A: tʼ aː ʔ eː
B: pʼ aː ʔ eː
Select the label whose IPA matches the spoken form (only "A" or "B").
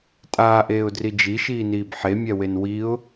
A